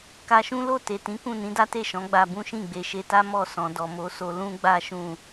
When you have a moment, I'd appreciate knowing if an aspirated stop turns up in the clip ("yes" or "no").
no